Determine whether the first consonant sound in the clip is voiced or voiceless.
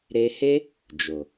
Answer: voiced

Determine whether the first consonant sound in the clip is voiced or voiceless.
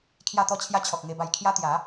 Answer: voiceless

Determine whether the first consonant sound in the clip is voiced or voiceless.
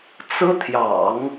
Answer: voiceless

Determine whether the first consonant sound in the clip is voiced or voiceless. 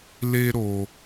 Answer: voiced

